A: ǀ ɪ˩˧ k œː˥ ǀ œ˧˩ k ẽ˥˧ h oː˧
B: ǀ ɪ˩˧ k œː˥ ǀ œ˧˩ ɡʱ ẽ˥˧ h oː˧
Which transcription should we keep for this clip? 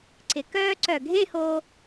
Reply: B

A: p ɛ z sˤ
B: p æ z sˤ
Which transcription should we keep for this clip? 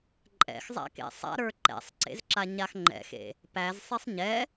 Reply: B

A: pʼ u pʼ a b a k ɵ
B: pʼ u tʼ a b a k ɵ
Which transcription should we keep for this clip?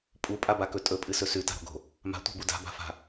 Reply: A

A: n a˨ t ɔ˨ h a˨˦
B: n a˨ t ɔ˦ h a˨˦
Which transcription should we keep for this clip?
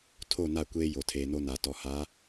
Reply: A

